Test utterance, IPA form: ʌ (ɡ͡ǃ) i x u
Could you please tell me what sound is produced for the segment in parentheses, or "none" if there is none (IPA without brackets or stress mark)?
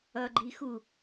ɡ͡ǃ